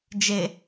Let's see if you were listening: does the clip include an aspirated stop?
no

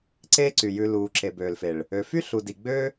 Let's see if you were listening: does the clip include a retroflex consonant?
yes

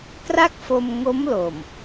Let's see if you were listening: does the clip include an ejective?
no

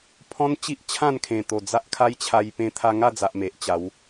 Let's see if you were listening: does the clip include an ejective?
no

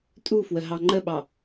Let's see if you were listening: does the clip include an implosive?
yes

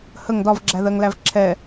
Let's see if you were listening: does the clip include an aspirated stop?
yes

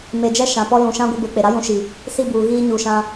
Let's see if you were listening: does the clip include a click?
no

